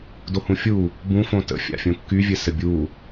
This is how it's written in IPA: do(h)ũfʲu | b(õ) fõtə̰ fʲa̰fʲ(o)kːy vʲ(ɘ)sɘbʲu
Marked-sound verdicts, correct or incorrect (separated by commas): correct, incorrect, incorrect, correct